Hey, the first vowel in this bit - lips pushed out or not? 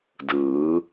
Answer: no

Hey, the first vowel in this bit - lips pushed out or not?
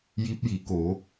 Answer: no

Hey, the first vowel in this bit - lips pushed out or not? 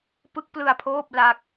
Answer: no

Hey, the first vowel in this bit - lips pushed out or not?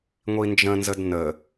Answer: no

